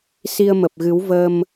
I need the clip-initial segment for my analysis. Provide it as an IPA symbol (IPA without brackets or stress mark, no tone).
s